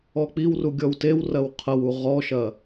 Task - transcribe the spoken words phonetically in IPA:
ɔk͡piwru ɡʲɔwtewrɐw qʰɐwu ʁɔʃɐ

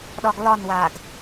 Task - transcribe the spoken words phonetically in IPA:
ɗɒɡlɒnwaːɡ

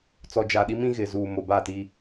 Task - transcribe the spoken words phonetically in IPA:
t͡sɔ˨d͡ʒa˨ɗi˦mĩ˦ ɣɪ˨ zuː˨mo˨ba˦˨ti˦

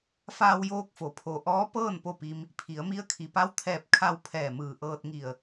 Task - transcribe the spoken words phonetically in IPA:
faː˧wjoː˧k̚fo˩˧ pʰo˩ ʔɔː˧˥ pɤː˥˨n po˥˨pi˧m | pʰi˩˧ə̯mi˧˥ə̯kʰi˩˧ pa˧˥wt̪ʰɛː˧˩p̚kʰa˧w pʰɛː˧˩mɯː˧˩ ʔɤː˧t̚ŋi˧˩ə̯

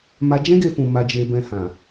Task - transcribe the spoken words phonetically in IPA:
ma˧d͡ʒɛ̃˦ɡe˧ fũ˧ma˧d͡ʒe˧bɛ̃˧ hã˨

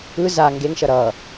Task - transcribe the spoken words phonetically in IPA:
ɯ za ŋɡeŋʃʌ ɾʌ

